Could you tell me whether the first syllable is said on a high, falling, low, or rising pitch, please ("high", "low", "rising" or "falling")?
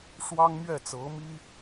high